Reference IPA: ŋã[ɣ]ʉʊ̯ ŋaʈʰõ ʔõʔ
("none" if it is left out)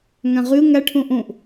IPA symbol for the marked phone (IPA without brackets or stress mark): ʁ